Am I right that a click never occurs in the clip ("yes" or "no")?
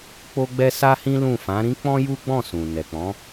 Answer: yes